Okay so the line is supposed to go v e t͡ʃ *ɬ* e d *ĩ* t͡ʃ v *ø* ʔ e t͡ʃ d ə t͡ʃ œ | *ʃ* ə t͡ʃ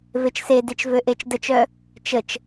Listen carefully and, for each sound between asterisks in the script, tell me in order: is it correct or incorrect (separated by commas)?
incorrect, incorrect, correct, incorrect